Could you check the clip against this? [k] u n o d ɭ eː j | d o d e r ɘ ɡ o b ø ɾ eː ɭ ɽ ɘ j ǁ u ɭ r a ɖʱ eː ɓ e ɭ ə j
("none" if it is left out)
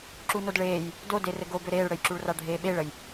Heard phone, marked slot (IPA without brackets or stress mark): ǁ